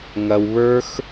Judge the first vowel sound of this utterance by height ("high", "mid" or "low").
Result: low